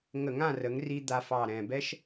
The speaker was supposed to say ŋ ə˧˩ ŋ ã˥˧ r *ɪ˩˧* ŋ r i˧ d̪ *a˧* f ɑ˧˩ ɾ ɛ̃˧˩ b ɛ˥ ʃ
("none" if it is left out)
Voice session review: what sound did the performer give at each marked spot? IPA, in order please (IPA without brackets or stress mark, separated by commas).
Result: ə˩˧, a˧